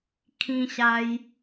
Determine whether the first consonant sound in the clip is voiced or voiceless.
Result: voiceless